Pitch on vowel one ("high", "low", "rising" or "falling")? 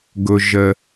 low